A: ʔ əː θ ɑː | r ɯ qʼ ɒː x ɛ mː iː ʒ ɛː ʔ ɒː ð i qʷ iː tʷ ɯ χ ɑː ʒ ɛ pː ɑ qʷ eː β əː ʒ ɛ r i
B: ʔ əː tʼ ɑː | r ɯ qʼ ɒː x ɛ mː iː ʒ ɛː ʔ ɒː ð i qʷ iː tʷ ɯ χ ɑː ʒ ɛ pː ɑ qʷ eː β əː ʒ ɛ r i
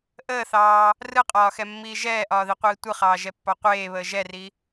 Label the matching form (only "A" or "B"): A